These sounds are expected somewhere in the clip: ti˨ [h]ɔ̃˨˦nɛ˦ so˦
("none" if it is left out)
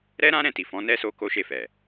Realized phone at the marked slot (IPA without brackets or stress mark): f